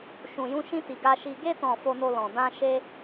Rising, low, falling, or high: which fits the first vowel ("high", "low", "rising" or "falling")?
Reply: low